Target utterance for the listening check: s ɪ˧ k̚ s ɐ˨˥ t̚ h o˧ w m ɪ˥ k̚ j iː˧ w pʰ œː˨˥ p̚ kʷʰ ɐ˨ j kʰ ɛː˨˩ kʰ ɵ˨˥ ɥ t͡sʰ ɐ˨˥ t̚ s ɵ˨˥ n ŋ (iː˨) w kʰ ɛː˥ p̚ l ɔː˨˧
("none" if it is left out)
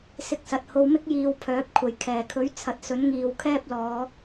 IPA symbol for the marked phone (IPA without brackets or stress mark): iː˨